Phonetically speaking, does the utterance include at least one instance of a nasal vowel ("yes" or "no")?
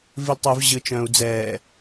yes